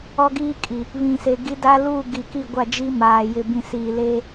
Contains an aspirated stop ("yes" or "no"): no